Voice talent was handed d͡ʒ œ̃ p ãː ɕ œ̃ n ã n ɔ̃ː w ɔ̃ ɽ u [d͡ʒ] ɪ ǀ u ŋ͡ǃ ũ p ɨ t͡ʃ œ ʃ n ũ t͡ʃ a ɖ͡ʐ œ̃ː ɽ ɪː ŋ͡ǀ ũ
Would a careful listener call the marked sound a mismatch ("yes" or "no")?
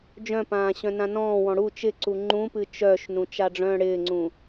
yes